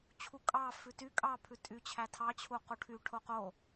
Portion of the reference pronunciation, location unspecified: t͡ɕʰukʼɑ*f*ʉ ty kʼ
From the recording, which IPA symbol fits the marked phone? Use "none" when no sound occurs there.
f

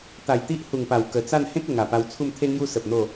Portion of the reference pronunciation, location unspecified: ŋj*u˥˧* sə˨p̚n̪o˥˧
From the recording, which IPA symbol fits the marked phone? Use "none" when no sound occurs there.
u˦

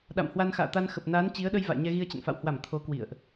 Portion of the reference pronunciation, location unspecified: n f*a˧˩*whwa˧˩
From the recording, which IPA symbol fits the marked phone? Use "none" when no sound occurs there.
a̰˧˨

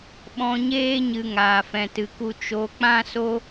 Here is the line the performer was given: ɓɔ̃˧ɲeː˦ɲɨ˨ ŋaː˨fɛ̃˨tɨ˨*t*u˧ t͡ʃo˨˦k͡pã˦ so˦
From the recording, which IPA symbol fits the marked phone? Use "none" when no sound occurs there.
k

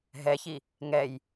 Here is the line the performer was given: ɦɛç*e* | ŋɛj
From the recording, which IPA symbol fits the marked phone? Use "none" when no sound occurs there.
i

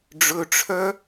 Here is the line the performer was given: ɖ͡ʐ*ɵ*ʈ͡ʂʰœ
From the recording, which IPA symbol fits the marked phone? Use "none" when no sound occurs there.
ɵ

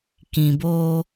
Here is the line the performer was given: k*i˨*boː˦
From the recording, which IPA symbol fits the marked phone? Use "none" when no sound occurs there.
ĩ˨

